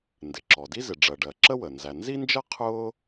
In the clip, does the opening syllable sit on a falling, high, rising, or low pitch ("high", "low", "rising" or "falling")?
low